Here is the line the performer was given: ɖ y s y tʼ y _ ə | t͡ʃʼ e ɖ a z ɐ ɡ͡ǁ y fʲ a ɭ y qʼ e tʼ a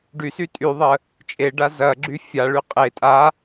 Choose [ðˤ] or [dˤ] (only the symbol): ðˤ